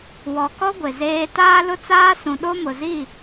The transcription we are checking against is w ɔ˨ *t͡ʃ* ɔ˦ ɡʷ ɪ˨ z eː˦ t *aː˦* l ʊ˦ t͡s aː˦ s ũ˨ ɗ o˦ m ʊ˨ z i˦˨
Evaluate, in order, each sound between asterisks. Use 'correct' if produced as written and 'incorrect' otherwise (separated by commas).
incorrect, correct